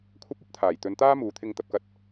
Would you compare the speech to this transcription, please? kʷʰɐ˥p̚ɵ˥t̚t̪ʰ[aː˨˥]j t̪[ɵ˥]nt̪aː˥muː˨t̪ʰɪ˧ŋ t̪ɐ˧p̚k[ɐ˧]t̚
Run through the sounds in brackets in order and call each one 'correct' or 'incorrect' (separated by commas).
incorrect, incorrect, correct